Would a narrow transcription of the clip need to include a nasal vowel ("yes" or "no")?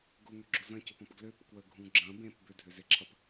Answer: yes